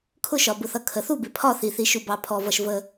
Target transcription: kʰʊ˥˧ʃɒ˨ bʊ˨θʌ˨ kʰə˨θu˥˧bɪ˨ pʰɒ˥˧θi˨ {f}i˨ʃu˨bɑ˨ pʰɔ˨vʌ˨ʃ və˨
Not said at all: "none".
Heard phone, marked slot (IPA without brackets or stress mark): θ